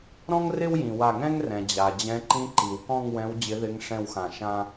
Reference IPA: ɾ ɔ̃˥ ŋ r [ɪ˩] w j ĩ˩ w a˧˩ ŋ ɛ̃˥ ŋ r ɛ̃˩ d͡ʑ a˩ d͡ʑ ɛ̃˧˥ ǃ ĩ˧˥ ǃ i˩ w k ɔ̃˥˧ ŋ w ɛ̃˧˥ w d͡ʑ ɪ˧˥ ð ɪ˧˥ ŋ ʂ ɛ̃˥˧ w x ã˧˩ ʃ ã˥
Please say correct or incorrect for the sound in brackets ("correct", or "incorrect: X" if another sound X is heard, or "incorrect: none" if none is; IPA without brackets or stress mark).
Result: incorrect: ɪ˥